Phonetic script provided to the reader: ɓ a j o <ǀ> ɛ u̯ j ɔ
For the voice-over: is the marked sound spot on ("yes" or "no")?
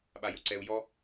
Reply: yes